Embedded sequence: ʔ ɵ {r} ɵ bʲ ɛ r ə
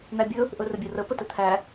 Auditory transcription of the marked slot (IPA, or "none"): r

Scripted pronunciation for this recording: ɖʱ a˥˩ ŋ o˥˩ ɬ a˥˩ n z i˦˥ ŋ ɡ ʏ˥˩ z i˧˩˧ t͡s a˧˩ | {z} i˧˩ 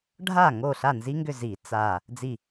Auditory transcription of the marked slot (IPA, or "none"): d͡z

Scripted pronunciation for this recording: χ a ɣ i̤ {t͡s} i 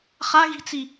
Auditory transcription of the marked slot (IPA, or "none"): t͡s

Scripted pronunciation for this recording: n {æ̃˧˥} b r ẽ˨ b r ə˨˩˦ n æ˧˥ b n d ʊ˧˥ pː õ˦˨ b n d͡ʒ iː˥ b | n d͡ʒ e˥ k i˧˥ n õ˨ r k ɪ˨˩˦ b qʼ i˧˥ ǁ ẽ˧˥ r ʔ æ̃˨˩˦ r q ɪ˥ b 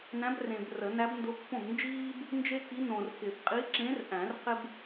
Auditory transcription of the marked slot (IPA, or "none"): æ̃˧˥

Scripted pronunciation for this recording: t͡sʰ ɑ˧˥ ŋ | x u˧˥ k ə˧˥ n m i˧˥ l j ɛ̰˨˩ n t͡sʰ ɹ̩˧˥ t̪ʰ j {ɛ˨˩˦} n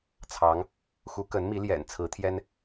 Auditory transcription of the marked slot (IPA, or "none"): ɛ˥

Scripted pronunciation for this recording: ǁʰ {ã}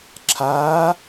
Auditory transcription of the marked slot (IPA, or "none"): a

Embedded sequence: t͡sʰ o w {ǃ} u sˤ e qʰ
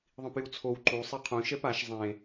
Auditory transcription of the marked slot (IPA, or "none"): ǃ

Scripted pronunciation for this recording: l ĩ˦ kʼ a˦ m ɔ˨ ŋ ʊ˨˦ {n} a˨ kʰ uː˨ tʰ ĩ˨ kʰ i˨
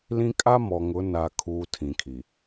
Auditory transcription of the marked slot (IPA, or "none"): n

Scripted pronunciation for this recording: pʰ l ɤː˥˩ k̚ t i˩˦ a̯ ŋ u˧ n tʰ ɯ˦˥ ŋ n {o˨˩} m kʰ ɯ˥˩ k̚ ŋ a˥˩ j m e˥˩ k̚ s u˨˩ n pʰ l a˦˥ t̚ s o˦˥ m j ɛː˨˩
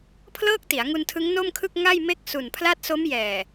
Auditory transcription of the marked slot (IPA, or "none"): o˥˩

